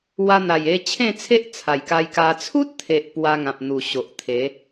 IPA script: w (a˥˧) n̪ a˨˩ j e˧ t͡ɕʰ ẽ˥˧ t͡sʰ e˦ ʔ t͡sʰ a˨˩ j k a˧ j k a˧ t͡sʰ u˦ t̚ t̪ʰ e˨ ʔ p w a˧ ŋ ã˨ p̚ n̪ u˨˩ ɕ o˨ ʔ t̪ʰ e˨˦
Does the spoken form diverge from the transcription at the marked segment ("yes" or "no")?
yes